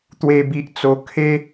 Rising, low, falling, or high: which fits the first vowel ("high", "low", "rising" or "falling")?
high